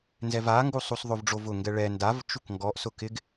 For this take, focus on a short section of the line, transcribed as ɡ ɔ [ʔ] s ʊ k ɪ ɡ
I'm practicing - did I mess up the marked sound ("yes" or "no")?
no